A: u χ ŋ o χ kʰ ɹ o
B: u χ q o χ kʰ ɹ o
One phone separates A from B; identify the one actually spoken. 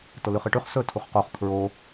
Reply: B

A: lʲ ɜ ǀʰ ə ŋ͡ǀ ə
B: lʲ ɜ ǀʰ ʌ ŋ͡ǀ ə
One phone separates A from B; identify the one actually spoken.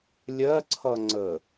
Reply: B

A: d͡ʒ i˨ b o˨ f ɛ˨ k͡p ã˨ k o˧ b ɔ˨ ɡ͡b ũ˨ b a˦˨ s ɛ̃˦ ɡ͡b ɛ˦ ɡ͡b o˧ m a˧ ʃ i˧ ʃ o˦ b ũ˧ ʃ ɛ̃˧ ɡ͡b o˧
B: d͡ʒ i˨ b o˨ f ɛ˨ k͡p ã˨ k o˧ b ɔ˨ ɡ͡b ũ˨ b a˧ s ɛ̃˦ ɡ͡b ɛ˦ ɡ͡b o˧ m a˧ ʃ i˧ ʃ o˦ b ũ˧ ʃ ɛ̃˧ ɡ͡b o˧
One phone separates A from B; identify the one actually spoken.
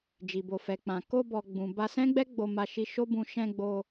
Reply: B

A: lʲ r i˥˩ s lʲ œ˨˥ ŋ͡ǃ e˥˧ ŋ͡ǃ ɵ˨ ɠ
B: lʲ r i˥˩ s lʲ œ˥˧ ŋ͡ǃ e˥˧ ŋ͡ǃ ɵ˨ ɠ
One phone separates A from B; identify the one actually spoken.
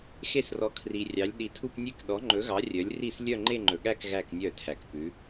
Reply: B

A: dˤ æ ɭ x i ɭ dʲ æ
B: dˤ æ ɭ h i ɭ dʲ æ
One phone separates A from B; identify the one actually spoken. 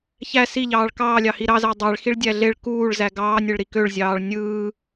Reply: A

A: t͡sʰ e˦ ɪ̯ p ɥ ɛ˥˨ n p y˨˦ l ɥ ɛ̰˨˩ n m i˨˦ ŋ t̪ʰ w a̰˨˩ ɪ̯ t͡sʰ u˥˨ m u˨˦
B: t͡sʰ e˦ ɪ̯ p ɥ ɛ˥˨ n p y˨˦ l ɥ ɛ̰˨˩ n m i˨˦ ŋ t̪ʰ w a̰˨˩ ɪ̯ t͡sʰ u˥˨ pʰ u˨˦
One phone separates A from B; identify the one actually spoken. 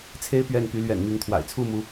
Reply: A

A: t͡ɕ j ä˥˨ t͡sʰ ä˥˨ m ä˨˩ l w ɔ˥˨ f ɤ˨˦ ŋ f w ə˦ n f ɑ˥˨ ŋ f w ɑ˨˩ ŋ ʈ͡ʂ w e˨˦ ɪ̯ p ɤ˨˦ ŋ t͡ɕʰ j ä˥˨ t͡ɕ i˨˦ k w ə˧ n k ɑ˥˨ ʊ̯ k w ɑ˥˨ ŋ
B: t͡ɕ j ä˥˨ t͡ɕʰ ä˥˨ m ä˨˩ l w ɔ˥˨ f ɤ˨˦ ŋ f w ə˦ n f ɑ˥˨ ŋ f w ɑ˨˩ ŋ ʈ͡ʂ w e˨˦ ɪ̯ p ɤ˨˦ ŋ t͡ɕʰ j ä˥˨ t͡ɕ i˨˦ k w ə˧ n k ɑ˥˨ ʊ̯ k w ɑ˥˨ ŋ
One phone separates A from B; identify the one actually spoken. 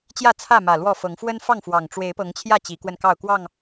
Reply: A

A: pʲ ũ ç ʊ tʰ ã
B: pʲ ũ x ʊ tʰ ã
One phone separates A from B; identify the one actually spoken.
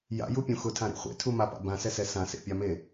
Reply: B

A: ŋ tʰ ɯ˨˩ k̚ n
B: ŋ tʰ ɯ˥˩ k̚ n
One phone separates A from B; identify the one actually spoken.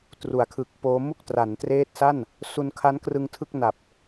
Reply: B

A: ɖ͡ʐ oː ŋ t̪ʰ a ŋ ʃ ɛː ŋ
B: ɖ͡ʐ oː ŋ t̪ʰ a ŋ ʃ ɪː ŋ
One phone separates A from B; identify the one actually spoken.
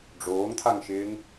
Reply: B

